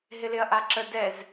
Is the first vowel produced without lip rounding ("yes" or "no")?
yes